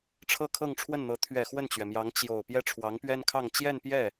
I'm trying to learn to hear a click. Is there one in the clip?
no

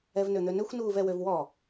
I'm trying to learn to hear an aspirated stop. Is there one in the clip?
no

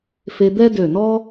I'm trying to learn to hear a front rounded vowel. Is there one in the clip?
yes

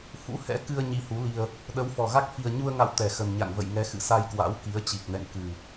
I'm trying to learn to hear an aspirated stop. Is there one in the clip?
no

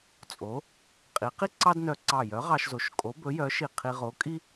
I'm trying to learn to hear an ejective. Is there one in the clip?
yes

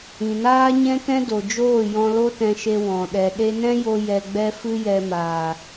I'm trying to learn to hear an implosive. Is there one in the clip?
yes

